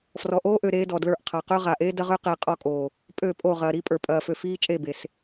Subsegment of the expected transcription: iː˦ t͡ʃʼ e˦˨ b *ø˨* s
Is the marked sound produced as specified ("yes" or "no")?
no